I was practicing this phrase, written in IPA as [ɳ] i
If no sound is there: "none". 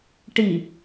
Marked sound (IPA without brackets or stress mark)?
ʈ